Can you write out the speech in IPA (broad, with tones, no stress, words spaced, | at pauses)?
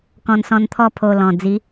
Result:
kɔ̃˧nsɔ̃˧nt̪ʰɔ˥˧ pʰo˧lɔ̃˨˩d͡zi˨˦